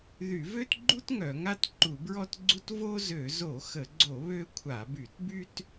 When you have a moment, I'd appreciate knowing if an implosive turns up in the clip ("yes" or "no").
no